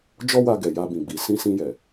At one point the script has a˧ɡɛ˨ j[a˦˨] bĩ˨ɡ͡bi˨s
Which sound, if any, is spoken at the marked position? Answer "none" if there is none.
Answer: a˧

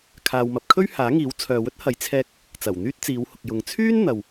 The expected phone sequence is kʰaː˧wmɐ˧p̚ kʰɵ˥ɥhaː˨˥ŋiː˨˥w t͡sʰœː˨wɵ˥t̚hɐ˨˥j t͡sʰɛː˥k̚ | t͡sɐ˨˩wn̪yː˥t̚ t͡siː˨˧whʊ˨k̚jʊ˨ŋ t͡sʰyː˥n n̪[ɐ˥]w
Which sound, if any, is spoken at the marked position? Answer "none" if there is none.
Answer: ɐ˨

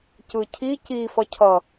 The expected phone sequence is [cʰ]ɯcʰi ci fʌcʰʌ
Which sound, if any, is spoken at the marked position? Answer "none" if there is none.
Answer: c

